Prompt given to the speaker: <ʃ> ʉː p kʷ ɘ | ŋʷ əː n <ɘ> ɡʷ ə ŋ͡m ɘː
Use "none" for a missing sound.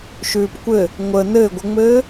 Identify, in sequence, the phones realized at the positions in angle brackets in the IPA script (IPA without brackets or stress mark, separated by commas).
ʃ, ɘ